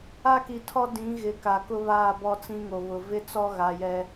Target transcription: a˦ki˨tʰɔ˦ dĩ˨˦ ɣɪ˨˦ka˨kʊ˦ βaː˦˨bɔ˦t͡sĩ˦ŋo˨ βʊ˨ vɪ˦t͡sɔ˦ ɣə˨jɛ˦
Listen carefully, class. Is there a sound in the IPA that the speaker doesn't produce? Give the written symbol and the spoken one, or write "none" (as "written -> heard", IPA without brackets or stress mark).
ə˨ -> a˨